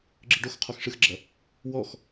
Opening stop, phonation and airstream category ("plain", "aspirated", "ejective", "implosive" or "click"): click